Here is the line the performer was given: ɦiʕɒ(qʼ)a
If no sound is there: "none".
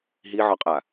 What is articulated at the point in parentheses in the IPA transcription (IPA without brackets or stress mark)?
qʼ